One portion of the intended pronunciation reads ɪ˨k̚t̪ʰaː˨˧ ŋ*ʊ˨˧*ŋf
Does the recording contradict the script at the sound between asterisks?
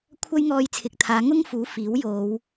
yes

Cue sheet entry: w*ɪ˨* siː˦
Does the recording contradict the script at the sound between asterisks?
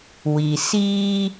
yes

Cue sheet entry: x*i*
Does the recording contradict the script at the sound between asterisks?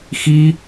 no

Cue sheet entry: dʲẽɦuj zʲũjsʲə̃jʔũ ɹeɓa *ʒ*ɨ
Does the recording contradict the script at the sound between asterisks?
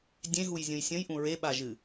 no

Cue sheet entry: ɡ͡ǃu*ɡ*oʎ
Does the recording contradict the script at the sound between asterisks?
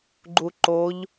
yes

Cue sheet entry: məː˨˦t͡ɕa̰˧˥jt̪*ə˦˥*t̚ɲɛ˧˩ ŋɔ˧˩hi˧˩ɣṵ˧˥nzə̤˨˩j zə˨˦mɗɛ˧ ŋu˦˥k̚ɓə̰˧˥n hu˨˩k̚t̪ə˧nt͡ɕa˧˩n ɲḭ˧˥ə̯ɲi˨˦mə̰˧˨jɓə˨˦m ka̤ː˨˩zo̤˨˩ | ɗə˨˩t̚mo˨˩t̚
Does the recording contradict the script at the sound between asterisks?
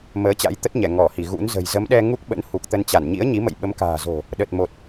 no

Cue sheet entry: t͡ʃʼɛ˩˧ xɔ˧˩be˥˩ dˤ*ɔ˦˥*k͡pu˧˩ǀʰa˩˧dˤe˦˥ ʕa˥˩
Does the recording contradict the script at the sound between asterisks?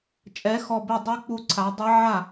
yes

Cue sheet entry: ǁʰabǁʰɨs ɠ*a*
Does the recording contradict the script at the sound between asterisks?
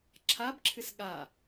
no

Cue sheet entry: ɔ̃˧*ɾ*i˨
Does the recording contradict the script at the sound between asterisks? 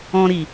no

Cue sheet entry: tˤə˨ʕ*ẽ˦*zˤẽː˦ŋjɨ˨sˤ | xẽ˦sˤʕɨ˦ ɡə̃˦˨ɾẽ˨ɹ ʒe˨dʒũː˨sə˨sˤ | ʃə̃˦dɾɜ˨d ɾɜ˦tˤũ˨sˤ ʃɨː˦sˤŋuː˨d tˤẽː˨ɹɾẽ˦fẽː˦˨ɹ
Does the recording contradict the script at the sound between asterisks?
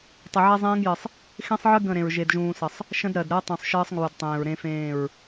yes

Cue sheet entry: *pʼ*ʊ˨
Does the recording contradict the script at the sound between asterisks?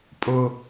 no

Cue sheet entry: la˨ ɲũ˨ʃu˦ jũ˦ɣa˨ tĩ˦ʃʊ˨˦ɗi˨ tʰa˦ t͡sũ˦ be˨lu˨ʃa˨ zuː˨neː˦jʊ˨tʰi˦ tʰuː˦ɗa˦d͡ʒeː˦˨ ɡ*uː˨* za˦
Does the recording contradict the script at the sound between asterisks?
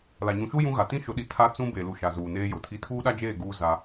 yes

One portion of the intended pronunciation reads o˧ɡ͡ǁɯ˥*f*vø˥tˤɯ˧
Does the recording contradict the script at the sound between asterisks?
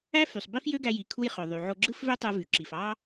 no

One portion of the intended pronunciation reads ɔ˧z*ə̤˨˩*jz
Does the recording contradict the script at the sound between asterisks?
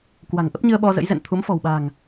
yes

